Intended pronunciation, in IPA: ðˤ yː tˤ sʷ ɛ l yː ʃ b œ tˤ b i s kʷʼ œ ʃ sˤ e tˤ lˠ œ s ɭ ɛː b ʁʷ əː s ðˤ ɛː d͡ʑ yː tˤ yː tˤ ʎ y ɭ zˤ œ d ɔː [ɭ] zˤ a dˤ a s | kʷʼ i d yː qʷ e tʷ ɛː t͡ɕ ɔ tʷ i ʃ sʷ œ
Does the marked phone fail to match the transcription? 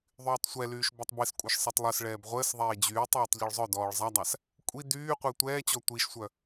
no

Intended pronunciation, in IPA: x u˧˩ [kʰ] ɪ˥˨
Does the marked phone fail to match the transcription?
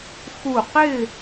yes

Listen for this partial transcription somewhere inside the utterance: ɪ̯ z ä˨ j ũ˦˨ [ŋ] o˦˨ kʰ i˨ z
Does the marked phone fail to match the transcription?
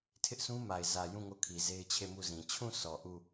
no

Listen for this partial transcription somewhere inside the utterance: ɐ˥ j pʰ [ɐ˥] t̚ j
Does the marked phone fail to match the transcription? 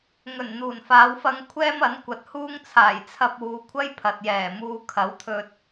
yes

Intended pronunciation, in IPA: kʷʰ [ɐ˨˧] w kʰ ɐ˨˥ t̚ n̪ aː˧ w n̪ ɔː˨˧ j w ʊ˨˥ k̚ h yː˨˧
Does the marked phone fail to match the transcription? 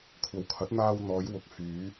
no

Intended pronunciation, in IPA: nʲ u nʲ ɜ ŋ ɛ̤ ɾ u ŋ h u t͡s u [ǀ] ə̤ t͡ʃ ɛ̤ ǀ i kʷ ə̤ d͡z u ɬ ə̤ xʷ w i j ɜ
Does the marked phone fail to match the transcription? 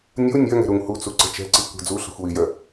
no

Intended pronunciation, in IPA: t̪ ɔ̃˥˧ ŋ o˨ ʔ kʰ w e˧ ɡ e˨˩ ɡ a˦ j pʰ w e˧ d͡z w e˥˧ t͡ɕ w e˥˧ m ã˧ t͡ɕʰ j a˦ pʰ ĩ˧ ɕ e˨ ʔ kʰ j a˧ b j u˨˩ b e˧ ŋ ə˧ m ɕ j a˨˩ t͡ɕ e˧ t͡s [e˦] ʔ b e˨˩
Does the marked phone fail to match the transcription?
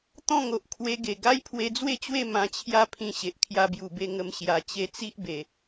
yes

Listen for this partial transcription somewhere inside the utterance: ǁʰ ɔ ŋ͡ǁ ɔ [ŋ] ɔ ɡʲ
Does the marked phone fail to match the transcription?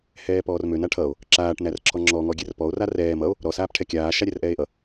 no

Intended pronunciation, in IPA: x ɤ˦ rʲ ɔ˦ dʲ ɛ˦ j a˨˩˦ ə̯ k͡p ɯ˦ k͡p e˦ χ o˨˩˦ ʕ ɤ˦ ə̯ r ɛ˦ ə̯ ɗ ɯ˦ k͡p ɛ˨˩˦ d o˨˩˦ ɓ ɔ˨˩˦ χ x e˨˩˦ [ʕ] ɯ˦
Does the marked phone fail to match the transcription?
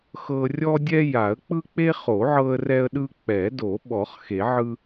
no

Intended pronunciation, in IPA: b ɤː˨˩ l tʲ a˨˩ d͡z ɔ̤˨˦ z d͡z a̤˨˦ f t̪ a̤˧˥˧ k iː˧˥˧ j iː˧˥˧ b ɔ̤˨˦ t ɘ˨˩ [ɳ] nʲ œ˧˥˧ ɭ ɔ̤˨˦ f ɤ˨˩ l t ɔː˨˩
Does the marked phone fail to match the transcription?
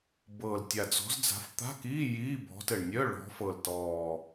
no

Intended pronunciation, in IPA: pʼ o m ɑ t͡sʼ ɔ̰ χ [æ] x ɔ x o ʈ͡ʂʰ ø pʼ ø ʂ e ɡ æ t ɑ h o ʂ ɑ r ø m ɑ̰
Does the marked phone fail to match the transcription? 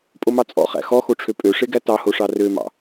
yes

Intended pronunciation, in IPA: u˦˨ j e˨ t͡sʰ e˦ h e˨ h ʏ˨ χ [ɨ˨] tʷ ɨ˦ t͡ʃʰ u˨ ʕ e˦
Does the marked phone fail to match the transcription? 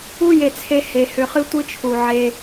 yes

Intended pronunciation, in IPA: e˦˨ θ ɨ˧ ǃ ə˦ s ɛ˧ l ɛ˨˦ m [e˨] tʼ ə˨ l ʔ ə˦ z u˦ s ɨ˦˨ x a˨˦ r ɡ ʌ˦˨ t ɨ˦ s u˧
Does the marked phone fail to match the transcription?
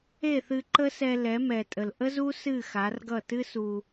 yes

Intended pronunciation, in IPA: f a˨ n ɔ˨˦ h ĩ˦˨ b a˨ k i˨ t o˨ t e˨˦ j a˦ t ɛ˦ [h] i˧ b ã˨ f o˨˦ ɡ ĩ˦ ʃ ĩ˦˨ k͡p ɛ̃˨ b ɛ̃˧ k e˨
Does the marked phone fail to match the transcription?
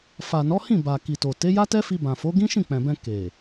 yes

